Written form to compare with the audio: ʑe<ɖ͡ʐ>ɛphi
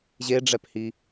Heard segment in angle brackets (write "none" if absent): ɖ͡ʐ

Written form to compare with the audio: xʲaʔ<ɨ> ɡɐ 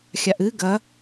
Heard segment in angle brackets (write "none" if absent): ɨ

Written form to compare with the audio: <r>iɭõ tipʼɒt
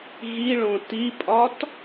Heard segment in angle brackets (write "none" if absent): ɣ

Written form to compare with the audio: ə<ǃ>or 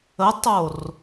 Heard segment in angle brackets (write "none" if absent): tˤ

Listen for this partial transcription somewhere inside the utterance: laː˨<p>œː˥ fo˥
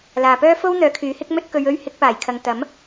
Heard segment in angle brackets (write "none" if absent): p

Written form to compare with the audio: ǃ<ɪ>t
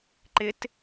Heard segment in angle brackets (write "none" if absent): ɪ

